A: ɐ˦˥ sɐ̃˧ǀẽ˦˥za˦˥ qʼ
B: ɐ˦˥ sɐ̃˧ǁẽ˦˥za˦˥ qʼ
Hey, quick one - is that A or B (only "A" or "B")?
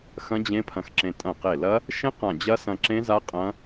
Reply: B